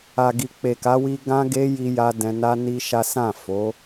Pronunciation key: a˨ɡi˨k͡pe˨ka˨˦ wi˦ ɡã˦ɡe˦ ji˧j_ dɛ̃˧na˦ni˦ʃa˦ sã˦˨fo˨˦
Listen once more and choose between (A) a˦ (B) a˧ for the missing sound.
B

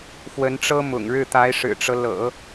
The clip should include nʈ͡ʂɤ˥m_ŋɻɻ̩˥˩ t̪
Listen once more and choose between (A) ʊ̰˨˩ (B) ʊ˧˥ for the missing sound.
A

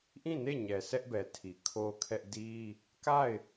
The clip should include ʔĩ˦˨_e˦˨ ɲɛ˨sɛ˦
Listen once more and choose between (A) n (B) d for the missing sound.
A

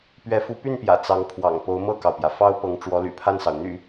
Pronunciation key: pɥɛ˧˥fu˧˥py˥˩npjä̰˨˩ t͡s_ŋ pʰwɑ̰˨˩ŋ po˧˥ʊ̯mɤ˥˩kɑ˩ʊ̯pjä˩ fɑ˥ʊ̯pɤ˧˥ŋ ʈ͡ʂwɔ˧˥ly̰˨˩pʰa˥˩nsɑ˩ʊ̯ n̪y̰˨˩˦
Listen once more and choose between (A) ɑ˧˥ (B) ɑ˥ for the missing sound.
A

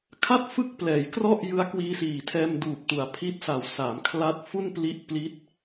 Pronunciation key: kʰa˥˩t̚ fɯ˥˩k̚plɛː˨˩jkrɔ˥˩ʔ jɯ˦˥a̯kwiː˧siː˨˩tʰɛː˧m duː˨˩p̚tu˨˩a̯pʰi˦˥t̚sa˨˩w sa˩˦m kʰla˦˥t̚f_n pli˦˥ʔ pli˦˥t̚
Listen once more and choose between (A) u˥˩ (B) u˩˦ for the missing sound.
A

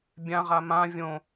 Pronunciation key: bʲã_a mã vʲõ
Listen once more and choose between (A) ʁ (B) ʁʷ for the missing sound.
A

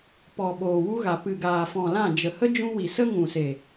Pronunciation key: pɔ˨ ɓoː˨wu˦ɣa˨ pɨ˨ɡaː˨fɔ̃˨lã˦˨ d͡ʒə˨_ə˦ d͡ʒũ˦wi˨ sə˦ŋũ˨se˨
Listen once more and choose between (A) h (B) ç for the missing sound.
A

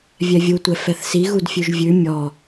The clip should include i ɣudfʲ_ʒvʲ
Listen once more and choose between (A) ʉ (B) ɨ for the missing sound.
A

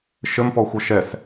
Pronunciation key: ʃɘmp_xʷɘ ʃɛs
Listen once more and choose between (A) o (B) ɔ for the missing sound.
B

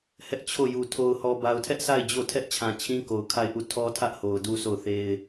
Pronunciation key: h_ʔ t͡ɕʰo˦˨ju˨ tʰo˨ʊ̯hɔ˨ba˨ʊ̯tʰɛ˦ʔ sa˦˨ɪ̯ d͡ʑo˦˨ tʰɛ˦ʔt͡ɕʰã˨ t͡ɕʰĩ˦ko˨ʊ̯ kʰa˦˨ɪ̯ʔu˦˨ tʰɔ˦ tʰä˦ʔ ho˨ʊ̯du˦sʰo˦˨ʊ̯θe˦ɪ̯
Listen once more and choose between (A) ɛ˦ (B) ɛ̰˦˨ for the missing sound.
A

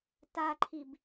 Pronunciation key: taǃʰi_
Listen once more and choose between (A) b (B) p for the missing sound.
A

